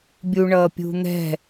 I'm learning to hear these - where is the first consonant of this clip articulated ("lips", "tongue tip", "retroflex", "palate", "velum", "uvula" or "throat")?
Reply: lips